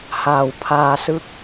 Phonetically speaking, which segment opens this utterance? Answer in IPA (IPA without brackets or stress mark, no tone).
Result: h